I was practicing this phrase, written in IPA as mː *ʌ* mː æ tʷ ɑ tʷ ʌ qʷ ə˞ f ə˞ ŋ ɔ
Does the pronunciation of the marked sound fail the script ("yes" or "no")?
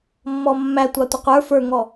yes